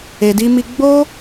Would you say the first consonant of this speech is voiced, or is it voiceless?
voiced